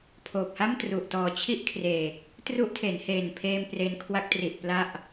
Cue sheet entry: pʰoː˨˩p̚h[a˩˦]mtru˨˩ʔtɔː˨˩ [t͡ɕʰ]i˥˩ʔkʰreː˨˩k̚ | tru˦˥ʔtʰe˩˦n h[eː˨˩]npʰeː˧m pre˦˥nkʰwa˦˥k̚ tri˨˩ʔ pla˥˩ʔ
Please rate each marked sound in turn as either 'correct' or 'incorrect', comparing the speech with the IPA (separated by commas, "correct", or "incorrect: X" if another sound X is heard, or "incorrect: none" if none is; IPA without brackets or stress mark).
incorrect: a˥˩, correct, correct